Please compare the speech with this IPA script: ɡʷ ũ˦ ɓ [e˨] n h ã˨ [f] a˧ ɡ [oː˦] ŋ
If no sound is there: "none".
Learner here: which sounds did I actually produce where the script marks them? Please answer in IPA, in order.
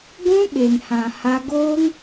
e˨, h, oː˦

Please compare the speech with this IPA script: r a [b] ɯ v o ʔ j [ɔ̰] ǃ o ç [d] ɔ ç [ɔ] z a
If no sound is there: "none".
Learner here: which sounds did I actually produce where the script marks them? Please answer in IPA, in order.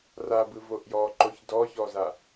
b, ɔ, d, ɔ

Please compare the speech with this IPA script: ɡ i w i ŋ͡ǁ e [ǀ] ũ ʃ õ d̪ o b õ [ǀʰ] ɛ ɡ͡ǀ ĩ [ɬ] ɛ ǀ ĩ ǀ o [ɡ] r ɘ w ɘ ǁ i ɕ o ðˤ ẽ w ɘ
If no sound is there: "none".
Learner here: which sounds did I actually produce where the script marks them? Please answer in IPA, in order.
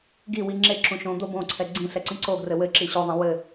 ǁ, ǀʰ, ɬ, ɡ

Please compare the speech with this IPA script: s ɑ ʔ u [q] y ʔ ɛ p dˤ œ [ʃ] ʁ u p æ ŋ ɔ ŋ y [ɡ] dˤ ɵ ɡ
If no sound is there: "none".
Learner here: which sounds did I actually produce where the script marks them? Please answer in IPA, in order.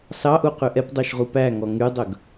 q, ʃ, none

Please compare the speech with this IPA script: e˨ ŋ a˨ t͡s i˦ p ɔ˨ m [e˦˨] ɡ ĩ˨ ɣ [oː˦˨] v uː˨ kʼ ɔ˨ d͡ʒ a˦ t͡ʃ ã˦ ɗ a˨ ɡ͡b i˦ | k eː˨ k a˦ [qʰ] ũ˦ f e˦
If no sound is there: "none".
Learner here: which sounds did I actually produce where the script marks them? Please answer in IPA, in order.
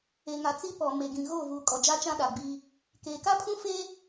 e˨, oː˦˨, pʰ

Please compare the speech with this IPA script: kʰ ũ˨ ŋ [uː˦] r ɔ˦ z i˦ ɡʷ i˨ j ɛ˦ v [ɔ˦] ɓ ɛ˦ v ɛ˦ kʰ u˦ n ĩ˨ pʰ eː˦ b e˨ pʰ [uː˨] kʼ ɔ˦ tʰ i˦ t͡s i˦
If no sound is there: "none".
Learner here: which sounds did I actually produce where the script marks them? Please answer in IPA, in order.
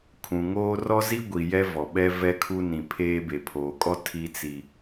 oː˦, ɔ˨, oː˨

